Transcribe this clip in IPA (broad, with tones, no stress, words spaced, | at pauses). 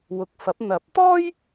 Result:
wʊ˨k̚ fɐ˨˥p̚ n̪ɐ˨˥p̚t̪ɔː˥j